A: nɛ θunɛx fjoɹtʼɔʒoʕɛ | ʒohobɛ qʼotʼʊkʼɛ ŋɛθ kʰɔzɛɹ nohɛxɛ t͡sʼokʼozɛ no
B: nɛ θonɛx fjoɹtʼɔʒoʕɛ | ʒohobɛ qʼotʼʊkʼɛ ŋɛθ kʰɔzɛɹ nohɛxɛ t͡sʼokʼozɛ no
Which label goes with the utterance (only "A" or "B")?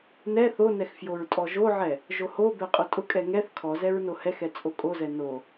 B